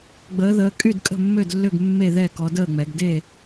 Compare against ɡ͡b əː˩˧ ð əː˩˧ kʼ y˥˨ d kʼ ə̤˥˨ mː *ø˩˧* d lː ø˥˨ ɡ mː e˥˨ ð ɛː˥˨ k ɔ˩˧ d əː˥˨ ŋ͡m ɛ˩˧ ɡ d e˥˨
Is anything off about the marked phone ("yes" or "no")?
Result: yes